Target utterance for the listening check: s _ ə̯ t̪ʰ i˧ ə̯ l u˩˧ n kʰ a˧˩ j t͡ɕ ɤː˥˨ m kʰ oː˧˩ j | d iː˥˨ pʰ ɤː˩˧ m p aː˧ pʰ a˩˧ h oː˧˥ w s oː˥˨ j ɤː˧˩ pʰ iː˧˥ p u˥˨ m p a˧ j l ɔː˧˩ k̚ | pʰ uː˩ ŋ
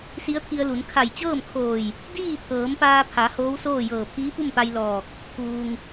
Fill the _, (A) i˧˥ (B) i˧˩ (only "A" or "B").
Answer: A